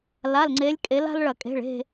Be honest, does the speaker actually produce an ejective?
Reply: yes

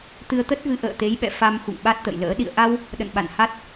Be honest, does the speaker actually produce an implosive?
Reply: yes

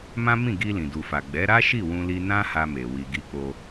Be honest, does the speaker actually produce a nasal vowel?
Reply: yes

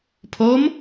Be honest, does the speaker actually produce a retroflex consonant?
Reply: no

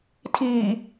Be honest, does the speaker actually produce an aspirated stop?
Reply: yes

